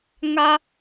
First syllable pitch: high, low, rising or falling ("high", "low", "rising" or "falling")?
high